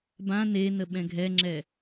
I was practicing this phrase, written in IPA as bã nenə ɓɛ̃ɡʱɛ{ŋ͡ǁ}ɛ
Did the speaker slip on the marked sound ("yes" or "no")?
no